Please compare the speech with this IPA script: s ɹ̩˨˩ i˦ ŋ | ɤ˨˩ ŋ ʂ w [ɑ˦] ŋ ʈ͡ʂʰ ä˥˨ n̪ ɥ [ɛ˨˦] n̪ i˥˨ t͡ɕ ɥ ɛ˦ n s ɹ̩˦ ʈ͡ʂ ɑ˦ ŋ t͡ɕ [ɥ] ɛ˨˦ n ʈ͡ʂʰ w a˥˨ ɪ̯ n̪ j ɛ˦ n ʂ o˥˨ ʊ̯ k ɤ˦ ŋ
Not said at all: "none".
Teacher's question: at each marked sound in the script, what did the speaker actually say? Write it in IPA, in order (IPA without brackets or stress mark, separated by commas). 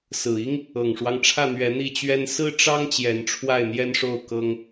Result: ɑ˦, ɛ˨˦, j